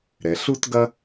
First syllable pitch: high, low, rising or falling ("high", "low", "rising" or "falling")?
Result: low